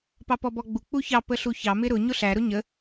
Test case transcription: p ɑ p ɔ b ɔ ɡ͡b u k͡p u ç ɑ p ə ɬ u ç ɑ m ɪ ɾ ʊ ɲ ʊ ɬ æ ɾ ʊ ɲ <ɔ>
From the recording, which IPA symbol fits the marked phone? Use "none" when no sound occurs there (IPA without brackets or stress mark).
ə